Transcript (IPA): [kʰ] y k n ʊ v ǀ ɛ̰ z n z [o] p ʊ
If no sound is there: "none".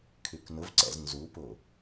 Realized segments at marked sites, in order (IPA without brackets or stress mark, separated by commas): kʰ, u